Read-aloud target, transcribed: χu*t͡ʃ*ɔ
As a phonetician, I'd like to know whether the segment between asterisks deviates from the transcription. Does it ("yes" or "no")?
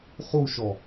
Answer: yes